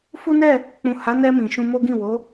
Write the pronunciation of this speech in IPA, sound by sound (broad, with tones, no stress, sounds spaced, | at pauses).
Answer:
f u˦ n ɛ˦˨ | k͡p ũ˨ h a˨˦ n ɛ˧ m ĩ˨ ʃ ũ˧ m o˦ ɡ ĩ˦˨ w o˨˦